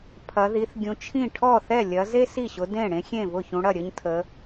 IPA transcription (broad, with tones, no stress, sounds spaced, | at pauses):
pʰ ɐ˨˦ ð i˨˦ θ ɡʲ ũ˨˦ t͡ʃʰ ĩ˥˩ ʈʰ ɔ˥˩ θ ɛ˥˩ lʲ ɐ˨˦ z e˥ s i˥˩ ɕ ʊ˨˦ d ẽ˥˩ ɽ ẽ˥ xʲ ẽ˥˩ v ʊ˥˩ ç ũ˨˦ ɽ ɐ˥˩ ɾʲ ə˥ ɲ tʰ ə˨˦